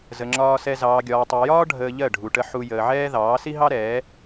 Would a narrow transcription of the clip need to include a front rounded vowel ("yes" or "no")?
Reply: no